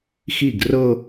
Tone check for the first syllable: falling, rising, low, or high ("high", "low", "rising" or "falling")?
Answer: falling